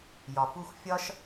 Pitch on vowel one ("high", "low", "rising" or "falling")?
low